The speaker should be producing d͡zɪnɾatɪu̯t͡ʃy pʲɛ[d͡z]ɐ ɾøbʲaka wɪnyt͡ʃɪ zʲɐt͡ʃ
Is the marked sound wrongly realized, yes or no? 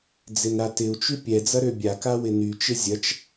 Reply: no